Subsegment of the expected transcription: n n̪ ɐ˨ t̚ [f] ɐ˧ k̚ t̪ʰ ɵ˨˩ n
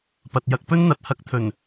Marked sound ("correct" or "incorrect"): incorrect